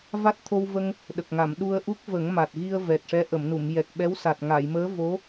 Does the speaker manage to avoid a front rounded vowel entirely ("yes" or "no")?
yes